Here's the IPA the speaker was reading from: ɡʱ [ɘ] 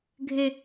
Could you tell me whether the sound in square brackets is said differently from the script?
no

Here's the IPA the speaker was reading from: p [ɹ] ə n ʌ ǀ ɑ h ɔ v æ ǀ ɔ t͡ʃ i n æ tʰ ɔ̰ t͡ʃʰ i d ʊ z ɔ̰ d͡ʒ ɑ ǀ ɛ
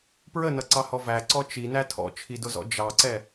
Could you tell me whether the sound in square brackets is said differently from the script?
no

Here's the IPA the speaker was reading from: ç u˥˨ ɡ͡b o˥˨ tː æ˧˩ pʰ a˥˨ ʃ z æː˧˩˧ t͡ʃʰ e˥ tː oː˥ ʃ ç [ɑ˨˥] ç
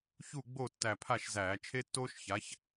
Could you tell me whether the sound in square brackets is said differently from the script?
yes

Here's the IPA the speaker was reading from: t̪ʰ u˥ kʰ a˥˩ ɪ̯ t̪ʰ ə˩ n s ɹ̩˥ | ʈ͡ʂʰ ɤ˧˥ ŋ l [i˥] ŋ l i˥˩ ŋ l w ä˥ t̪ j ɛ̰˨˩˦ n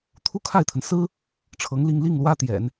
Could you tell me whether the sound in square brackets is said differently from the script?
yes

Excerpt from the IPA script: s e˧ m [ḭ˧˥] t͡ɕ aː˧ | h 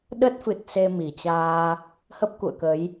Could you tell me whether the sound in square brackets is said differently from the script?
yes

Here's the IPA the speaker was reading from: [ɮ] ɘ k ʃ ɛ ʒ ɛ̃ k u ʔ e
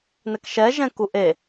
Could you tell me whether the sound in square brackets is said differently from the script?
yes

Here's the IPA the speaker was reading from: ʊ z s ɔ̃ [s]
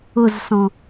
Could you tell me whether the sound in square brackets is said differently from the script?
yes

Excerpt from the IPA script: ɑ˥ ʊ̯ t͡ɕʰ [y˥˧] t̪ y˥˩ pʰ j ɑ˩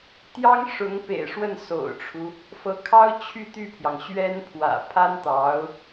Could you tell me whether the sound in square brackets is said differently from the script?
no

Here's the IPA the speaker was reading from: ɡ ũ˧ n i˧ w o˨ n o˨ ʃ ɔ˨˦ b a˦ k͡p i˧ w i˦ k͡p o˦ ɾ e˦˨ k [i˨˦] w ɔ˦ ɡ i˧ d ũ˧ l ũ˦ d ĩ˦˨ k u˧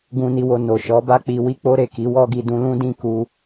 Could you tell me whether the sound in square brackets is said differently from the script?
no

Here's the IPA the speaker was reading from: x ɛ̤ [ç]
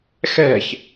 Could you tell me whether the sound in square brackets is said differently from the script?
no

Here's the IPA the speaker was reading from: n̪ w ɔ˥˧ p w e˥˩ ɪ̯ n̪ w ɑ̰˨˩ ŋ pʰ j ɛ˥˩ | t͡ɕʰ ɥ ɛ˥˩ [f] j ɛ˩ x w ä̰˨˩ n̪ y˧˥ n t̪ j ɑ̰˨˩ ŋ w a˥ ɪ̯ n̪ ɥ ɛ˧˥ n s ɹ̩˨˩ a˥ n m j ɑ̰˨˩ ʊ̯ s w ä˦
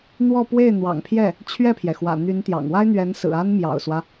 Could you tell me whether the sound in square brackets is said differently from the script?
yes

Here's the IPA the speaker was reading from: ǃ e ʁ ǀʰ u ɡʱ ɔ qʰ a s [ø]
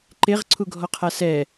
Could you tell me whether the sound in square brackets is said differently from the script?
yes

